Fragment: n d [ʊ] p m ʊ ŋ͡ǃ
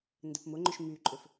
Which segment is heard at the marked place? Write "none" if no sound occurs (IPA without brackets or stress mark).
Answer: ə